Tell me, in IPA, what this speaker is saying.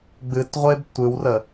ɡ͡b ɨ t ʁʷ e b tʷ ɨ w r ə

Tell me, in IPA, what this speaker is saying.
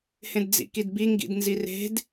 h ẽ d d͡z ḭ k i d b i ŋ ɡ ḭ d n z i r e̤ d

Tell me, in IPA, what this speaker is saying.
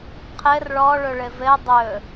qʰ ɘ r ɭ ɔ ɭ ɵ ɭ ɘ v ɘ dˤ ɵ

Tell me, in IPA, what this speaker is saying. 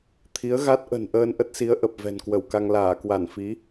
t̪ʰ i˨˦ ə̯ ɣ a˦˥ t̚ ʔ ə̤˨˩ n ʔ əː˧ n ʔ ə˦˥ t̚ s i˨˦ ə̯ ʔ ə˨˩ p̚ v ɛ̤˨˩ n k w ə˧˩ w k a˧ ŋ l aː˧˩ k w a˧˩ n f i˨˦

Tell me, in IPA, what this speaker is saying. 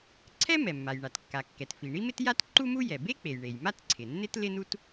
ǀʰ ɛ˥ m ɛ˩ mː a˩ j ɳ a˩ t kː a˩ kː ɛ˩ t f i˩ ɳ i˥ m ɪ˥ t j a˥ t ǃ u˥ m u˥ j ɛ˩ b e˥ k͡p e˩ j ɳ e˩ j m a˥ t ǀʰ ɪ˩ nː ɪ˥ t l ɪ˥ n u˥ t

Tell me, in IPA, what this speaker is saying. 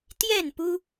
t̪ j ɛ˥˨ n p u˦

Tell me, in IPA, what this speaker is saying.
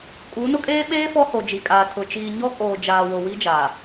kʼ u˨˦ n ʊ˦ kʼ eː˦ ɓ eː˦ f ɔ˦ h o˨ d͡ʒ i˨ kʼ aː˨ tʰ ʊ˨ t͡ʃ iː˨ ɲ ɔ˦ kʼ oː˨ d͡ʒ aː˨ w o˨ w i˦ d͡ʒ aː˨

